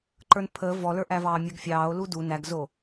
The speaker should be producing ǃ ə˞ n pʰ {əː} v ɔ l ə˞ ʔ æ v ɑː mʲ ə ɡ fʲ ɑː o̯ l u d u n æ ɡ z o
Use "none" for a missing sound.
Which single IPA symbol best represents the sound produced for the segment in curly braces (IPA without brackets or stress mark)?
əː